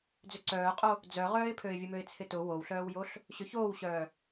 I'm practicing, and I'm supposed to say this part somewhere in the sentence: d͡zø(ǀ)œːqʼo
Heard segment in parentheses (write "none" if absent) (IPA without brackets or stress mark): ǀ